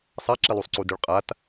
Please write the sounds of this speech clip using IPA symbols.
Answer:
sˤ a ǁ i lˠ u sˤ ǀ u d ʏ ɭ qʼ a t

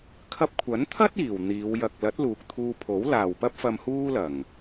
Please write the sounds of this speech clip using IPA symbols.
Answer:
kʰ ɐ˧ p̚ kʷʰ ɐ˨˥ n t̪ʰ ɐ˥ t̚ iː˨˩ w n̪ iː˨˧ w j ɐ˨ k̚ l ɐ˨˥ t̚ l uː˨ k̚ t̪ʰ uː˧ pʰ o˨˥ w l aː˨ w p ɐ˥ p̚ f ɐ˧ m h uː˥ l ɐ˨˩ ŋ

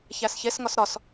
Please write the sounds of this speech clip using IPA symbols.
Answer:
ç æ s ç e s ŋ ɒ s ɾ ɒ s

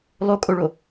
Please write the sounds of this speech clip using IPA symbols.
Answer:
lˠ o kʼ o ɭ o

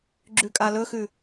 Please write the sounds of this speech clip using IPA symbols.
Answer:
ɡ͡ǁ ʉ kʼ a l ɵ x ʉ

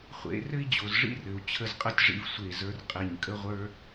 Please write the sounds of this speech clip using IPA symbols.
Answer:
χʷ ḛ˩˧ r ɘ˥ i̯ d͡ʑ o˩˧ z ʐ ḭ˥˧ r ɘ˩˧ u̯ t͡ɕʰ ə˧ z qʼ ə˥˧ tʲ ʐ ḭ˧ v sʷ e˧˩ z ə˞˧ r qʼ e˧˩ ɲ kʼ ə˥ ʁʷ ə˞˥

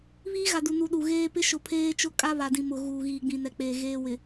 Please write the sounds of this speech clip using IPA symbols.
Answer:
β iː˦ ɣ a˨ d u˨ n u˨ ɗ u˨ ɣ eː˦ p ɪ˦ ʃ ʊ˨ pʰ eː˦ t͡ʃ ʊ˦ kʼ a˦ β a˨ d ĩ˨ m ʊ˨ ɣ uː˨ ɣ iː˨ ɡ͡b ĩ˨ n ɛ˨ k͡p eː˨ ɣ eː˦ w ɪ˨

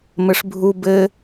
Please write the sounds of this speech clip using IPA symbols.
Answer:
m ɘ ʂ bʱ u b ɘ

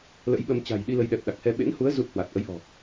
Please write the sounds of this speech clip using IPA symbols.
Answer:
l ə̰˧˥ j ɓ ə˧ m t͡ɕ a̤˨˩ j ɗ i˧ l ə˨˦ j ɗ ɛ˨˩ p̚ ɗ a˨˩ k̚ h ɛ˧ ɓ ḛ˧˥ n h u˨˦ ə̯ z u˦˥ t̚ h w a˨˩ t̚ ʔ ə˨˦ j ʔ ɔ̤˨˩

